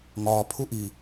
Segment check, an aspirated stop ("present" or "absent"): present